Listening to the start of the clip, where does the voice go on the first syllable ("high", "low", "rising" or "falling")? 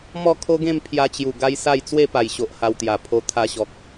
falling